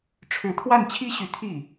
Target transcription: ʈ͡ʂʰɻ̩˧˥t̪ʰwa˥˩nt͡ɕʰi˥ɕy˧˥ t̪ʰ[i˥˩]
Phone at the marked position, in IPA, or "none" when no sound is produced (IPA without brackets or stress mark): i˥˩